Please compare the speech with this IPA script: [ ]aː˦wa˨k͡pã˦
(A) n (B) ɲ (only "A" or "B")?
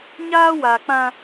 B